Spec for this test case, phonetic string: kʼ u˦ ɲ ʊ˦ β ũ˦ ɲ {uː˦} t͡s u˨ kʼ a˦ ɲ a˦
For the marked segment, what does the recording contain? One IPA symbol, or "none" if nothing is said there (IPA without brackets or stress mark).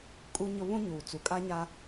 uː˨